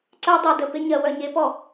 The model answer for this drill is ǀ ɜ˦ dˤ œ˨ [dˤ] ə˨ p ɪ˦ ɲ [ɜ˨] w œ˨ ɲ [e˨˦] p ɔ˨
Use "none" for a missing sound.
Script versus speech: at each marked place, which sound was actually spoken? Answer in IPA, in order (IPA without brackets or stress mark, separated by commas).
d, ɜ˨, e˨˦